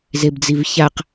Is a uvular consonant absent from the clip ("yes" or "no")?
no